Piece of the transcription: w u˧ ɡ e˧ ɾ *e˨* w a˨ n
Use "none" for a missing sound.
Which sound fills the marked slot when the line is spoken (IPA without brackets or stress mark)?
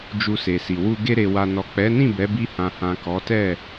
e˨